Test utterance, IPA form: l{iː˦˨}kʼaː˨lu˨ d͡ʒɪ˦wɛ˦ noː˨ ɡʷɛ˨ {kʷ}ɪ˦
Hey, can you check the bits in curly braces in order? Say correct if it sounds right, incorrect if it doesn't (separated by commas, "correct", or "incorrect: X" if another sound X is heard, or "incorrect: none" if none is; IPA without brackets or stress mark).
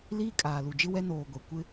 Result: incorrect: iː˦, correct